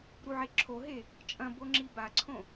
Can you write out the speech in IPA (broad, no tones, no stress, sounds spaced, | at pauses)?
ɾ u ʕ e ǁʰ o ɦ e | t͡ʃʼ ɐ̃ b o ŋ͡ǁ i b a ǀʰ õ